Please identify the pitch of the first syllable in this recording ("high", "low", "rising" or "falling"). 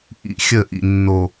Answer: low